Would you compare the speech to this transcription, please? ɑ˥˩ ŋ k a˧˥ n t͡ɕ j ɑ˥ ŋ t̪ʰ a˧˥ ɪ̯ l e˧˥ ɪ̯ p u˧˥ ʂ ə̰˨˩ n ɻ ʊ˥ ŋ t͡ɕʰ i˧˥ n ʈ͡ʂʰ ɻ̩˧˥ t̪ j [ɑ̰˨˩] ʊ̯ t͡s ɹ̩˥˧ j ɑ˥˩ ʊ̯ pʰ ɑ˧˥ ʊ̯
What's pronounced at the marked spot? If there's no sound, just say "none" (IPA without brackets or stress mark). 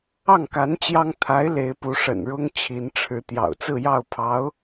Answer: ɑ̰˨˩